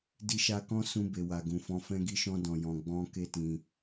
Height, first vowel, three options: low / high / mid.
high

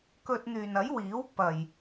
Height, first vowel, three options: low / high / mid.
mid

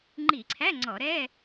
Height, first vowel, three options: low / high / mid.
high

